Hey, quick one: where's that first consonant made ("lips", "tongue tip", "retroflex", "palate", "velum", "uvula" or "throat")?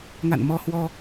velum